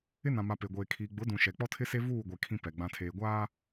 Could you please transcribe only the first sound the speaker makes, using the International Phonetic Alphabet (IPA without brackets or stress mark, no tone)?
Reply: ɪ